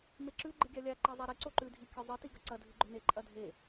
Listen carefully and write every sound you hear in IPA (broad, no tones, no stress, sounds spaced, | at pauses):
m e ǁ ʉ ɡ͡ǃ ɨ ɡʲ a lʲ a ǃ e zˤ e ɾ i ǀ o ǃ ʉ dʱ i kʲ ɵ zˤ ɨ t i ɡ ɐ ǀ ɐ dʱ ɨ ɡ͡ǃ ɵ n e ǃʼ ɐ dʱ e